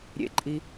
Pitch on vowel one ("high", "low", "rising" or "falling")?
falling